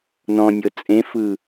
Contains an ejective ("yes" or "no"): yes